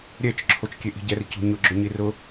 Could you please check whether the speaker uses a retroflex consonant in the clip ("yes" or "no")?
no